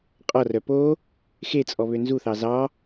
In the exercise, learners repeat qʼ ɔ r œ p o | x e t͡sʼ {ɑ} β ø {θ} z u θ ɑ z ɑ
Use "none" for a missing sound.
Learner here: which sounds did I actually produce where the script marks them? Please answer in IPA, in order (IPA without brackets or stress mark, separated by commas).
ɔ, n